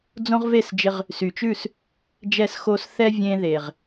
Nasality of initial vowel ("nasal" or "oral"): nasal